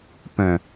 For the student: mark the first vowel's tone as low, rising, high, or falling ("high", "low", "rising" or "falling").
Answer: low